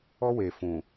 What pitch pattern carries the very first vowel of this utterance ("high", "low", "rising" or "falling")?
high